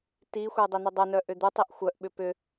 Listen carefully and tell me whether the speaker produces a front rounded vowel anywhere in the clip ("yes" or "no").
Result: yes